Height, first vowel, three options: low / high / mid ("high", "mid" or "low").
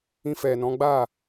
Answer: high